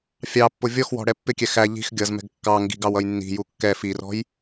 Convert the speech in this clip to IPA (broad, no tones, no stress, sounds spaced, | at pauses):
fʲ ɑ pː ʊ vʲ ɔ x w ɔ̤ ɽ ɛ pː ɪ kʲ ɛ x æ ʎ i̤ x ɡʲ ʌ z m ɛ̤ ɡ kː ɑ ŋ ɡ i̤ ɡ ɑ w ʌ j nː i̤ j u kː ɛ f i r ɔ̤ j